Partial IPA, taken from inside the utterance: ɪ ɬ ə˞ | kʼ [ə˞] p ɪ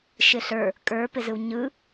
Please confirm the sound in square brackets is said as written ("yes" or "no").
yes